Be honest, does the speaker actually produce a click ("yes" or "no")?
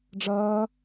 no